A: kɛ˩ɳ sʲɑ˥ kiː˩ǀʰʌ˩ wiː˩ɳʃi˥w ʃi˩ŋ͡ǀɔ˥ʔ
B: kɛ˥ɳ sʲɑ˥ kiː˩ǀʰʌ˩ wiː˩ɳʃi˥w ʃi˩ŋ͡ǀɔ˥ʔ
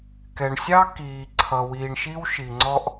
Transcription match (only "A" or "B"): A